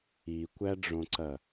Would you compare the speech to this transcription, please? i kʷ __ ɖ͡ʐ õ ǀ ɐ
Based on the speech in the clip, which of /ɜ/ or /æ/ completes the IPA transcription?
æ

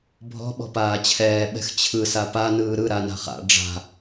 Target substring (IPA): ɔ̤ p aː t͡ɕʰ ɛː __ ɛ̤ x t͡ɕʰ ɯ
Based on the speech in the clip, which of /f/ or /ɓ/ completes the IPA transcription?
ɓ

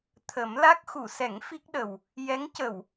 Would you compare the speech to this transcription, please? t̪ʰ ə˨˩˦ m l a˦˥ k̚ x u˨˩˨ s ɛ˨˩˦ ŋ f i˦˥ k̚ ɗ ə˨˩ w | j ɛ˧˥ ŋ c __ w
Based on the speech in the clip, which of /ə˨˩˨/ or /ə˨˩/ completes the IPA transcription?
ə˨˩˨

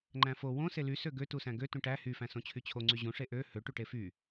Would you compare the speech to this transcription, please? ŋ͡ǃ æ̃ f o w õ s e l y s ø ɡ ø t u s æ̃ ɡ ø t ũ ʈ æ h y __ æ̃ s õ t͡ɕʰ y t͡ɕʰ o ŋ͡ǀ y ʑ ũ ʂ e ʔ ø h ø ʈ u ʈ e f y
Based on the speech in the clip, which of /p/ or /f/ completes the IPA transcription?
f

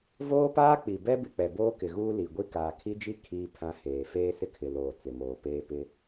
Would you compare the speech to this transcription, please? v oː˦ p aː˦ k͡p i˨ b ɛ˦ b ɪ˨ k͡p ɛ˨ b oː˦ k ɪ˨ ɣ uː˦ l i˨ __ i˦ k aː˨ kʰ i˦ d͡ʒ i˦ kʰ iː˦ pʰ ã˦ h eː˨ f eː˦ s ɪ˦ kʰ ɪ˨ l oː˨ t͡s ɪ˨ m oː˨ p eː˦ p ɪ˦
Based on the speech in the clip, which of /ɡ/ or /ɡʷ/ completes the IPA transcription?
ɡʷ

